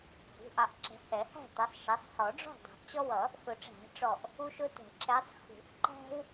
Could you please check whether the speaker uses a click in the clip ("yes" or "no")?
yes